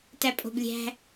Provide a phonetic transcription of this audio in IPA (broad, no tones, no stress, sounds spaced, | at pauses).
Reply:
t æ pʼ o̤ b lʲ æ̤